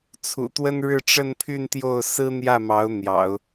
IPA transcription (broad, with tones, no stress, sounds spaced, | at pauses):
t͡sʰ ṵ˨˩ t̪ w ə˥ n ɻ ɻ̩˥˧ ʈ͡ʂ ə˥˧ n pʰ y˥˧ n t̪ j o˥˩ ʊ̯ s ɹ̩˥ n̪ j ä˥˩ m ɑ˧˥ ʊ̯ n̪ j ɑ̰˨˩˦ ʊ̯